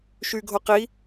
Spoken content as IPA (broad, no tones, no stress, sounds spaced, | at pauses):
ʃ y ɡʱ o q i